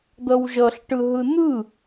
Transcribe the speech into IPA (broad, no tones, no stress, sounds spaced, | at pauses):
d̪ ʌ w ʒ ʌ ɬ ʈ ɯ ɦ ɯ n̪ ɯ